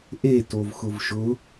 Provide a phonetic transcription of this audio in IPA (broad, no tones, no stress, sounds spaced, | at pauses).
ʔ e t o v x ʊ v ʃ ʊ